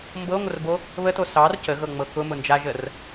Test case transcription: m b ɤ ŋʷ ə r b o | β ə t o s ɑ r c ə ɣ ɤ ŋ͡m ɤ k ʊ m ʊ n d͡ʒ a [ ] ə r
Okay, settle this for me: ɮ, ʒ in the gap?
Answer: ʒ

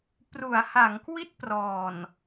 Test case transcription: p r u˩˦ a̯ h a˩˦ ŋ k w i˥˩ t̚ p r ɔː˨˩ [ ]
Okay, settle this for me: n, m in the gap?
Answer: n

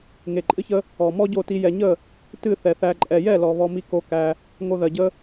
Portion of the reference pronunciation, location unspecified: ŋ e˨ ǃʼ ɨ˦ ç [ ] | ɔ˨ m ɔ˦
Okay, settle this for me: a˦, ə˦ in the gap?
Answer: ə˦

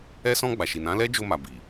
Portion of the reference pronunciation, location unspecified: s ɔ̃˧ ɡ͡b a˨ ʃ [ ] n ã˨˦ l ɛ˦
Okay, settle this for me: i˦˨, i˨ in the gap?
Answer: i˨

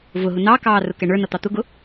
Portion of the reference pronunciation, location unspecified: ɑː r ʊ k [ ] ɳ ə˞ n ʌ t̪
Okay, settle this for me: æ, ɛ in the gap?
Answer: ɛ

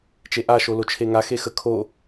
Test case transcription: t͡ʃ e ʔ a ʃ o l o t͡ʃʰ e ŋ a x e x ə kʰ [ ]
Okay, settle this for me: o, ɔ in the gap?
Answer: o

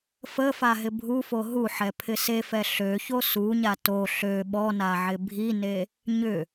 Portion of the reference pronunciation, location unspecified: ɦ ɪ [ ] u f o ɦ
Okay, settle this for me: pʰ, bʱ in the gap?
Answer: bʱ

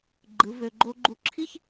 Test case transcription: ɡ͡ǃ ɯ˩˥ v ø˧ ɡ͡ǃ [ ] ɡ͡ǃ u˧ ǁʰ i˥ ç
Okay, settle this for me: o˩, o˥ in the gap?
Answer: o˥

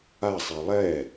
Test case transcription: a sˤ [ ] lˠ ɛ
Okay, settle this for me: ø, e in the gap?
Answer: e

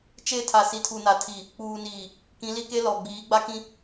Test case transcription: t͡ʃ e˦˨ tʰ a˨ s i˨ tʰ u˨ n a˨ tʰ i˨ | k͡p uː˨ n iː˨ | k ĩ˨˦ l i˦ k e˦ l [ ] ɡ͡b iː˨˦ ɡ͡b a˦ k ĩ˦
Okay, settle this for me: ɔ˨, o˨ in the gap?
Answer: ɔ˨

